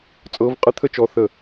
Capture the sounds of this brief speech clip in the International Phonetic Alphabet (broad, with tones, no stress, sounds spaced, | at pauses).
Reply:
t͡sʼ ɤ˨˦ v qʼ ə˦ t̪ʰ ə˦ t͡ʃ ɔ˨˦ θ ə˥˩